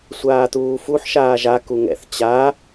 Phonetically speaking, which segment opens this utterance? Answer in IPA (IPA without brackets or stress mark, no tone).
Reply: sʷ